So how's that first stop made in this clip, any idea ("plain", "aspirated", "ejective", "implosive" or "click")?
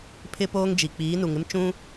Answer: aspirated